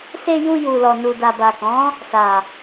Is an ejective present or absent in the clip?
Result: absent